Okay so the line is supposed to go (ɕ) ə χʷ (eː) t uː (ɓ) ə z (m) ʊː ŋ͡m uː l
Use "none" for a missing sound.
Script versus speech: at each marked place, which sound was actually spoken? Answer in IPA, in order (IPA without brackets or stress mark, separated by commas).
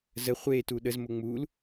z, eː, ɗ, m